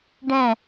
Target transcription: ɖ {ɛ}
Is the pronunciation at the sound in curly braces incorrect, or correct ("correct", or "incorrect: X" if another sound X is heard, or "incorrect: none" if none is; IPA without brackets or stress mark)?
incorrect: ɛ̃